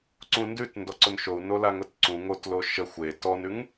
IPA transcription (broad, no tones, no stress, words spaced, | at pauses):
ǀũndʉtndɔǀʊn ʃou̯nolaŋʊt ǀũ ŋotlo ʃə xʷe tɔnʉŋ